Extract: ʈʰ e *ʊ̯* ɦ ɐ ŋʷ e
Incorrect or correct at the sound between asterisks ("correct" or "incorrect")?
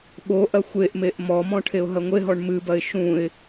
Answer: correct